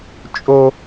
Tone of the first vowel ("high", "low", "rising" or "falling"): high